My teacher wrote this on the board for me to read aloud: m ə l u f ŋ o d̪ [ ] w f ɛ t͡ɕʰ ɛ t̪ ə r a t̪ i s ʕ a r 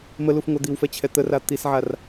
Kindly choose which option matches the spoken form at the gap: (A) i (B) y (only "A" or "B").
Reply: A